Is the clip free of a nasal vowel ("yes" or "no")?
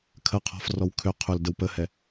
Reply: yes